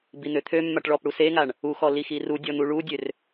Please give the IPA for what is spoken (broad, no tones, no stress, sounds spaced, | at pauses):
b i n̪ ø t̪ʰ ø mː a ʈ ɭ ɔ p ɽ u s e ŋ a ɳ | u x ɔ l i x i r u dʲ ɔ n̪ u ɭ u dʲ ø r